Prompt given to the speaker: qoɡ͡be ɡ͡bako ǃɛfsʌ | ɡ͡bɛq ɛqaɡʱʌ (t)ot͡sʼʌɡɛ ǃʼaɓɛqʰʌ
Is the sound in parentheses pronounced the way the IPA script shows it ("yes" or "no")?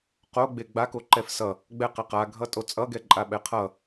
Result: no